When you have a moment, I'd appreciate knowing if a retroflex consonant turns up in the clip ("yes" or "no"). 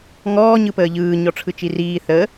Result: yes